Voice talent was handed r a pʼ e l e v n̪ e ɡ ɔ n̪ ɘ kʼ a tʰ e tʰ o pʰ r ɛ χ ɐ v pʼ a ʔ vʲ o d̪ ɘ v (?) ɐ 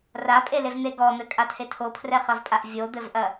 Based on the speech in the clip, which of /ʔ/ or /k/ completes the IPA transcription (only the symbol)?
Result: ʔ